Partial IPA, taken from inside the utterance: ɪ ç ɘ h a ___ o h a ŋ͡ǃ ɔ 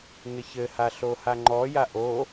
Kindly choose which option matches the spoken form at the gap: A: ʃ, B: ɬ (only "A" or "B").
B